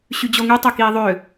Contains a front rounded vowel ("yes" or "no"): yes